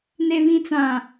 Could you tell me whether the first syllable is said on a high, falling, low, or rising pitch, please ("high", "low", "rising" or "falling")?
low